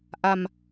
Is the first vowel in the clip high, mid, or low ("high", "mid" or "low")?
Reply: low